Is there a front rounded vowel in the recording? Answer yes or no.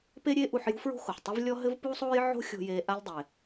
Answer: no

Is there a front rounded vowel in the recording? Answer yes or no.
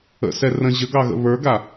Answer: no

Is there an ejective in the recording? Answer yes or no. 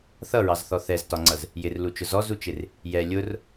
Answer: no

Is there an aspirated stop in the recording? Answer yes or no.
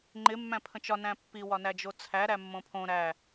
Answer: yes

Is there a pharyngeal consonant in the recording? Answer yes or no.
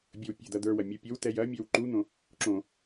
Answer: no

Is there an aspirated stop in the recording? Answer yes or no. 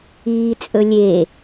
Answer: no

